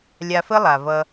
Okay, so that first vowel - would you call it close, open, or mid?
open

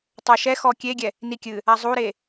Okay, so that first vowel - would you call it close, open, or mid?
mid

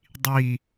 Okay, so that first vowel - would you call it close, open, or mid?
close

